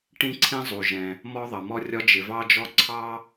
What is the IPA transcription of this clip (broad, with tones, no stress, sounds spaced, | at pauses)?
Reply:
ʈ ĩ˥ ǀʰ ĩ˥ zˤ u˩ ʒ ɛ̃˩ | m ɔ˥ ðˤ ʌ˩ m ɔ˥ rʲ ɒ˥ d͡ʒ ɪ˩ v ɑ˥ d͡ʒ ɔ˥ ǀʰ ɑ˥